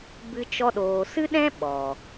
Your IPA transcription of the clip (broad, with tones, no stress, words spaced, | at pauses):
bɨ˧t͡ʃɔ˧ ɗoː˨sɨ˦ɗɛ̃˦ ɓɔ˨